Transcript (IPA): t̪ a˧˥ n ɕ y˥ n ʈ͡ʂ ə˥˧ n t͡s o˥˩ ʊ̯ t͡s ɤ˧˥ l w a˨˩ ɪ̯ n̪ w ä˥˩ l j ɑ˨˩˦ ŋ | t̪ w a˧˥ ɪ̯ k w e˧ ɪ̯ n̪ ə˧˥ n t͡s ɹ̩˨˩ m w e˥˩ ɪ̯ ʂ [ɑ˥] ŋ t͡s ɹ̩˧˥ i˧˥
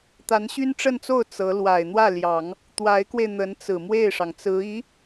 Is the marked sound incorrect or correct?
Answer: incorrect